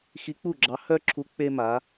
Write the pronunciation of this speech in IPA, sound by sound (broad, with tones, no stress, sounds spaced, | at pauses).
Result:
x i˧˥ k͡p u˥˩ ɡ͡ǁ ɑ˧˥ h œ˥ ǁʰ u˧˥ k͡p e˥ m a˧˥